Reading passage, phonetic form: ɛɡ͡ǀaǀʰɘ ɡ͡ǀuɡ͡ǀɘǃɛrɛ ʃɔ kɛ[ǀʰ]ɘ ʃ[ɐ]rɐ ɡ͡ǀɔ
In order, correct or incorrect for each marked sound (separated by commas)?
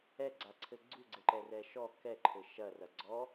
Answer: incorrect, correct